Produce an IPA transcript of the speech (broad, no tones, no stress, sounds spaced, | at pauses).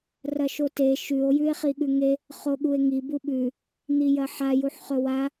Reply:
r ɐ ʃ o t e ʃ ʉ o̯ j ʉ e̯ χ i ɠ ʉ ŋ e | χ o ɠ u e̯ ŋ i b u ɓ ʉ | n̪ i j ɐ ħ a j u ħ χ ɵ w a